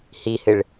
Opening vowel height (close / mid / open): close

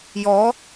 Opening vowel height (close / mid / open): mid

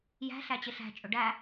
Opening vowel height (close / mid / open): open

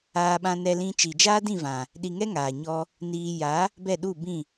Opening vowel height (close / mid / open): open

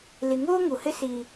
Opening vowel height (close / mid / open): close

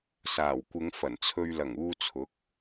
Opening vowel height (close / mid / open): open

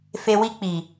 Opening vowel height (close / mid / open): mid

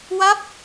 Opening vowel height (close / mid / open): open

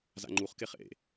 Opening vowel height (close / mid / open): open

